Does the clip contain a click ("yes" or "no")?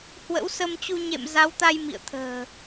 no